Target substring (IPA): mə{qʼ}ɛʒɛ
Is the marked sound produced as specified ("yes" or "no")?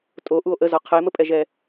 no